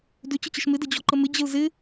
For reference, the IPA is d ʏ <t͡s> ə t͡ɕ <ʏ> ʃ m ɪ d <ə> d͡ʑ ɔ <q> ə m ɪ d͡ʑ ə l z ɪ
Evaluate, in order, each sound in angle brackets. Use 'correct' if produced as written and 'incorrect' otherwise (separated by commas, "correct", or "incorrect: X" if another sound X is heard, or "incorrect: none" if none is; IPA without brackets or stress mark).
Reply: incorrect: t͡ɕ, incorrect: ə, correct, incorrect: ǃ